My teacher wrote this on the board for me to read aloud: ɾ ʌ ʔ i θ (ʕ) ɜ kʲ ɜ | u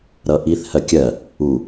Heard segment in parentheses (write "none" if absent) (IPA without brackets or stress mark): h